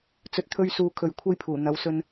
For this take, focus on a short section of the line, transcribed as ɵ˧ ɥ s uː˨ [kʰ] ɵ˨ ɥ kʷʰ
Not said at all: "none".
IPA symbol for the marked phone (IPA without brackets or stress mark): kʰ